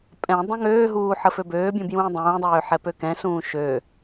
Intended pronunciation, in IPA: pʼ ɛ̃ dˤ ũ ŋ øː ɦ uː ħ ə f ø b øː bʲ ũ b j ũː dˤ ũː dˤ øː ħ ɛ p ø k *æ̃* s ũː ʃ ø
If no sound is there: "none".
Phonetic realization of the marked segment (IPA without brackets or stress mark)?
ɛ̃